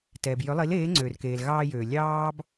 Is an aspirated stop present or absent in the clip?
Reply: absent